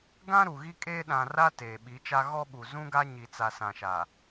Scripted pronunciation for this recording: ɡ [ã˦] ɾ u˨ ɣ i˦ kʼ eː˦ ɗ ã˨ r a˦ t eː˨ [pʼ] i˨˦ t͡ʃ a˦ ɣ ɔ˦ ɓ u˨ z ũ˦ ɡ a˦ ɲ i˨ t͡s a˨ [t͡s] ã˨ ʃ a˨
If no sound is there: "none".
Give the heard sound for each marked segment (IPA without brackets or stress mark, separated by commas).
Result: ã˦, ɓ, s